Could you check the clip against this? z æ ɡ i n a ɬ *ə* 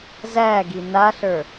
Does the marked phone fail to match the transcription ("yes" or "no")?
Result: yes